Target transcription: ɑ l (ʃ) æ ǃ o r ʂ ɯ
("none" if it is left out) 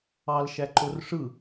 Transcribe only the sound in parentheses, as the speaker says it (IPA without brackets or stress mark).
ʃ